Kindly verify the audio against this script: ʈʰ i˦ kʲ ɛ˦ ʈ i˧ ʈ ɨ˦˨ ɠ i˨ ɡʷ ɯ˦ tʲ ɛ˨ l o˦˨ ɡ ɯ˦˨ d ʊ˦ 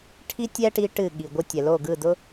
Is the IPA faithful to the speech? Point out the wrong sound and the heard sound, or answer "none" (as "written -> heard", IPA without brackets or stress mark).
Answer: kʲ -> tʲ